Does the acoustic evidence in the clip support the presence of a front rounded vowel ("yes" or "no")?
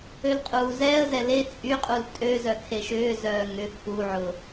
yes